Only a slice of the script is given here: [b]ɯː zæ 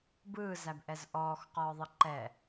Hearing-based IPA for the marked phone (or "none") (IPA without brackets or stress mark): b